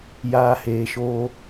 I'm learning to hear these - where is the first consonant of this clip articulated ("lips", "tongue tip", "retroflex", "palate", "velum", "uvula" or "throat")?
palate